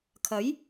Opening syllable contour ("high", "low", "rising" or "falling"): rising